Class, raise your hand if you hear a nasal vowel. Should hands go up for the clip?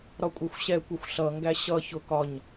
no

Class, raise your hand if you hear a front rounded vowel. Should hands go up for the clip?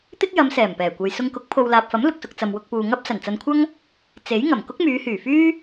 yes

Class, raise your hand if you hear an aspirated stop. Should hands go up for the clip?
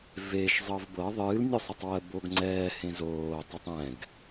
no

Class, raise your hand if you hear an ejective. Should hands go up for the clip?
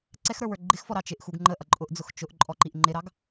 yes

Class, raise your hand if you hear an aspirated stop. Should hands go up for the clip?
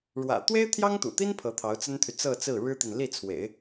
yes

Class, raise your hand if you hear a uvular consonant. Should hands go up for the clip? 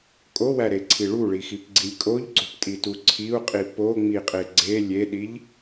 yes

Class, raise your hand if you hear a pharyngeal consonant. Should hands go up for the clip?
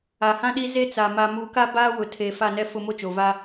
no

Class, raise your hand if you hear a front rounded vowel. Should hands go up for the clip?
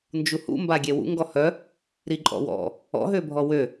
yes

